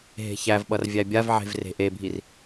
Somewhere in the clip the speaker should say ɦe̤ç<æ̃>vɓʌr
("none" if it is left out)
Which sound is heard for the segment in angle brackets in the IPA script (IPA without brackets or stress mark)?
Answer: æ